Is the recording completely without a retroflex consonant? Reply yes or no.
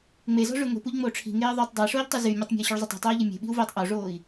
no